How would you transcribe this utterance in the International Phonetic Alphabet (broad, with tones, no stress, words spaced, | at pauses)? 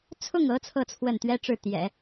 t͡sʰʊ˥˩ŋɤ˧˥ t͡sʰɤ˥˧t͡sʰwə˥˩nt̪ɥɛ˥ʈ͡ʂɻ̩˥˩ t̪jɛ̰˨˩˦